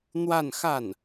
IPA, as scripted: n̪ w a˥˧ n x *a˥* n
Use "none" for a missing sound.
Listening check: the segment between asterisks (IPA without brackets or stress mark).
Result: a˥˩